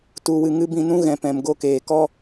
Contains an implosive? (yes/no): no